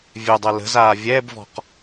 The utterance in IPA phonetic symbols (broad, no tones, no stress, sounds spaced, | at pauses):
vʲ ø dˤ ɛ l ə̤ z aː vʲ ɛ b v ɔ̤ q